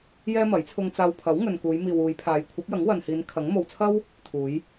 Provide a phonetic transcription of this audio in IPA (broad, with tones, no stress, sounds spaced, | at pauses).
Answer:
j ɛː˥ m ɐ˨˥ j t͡sʰ ʊ˧ ŋ t͡s aː˧ w pʰ ɐ˨˥ w ŋ ɵ˨ n k uː˨˧ j m iː˨ w uː˨˧ j pʰ aː˨˧ j kʷʰ ɐ˨˥ k̚ j ɐ˨˥ ŋ w ɐ˨ n h iː˨˧ n kʰ ɐ˨˥ ŋ m o˨ w t͡sʰ ɐ˥ w | t̪ʰ uː˨˧ j